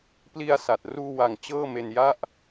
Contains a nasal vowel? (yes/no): no